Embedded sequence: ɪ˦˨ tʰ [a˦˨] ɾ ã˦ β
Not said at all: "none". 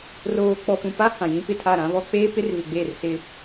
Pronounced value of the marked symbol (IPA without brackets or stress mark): a˦˨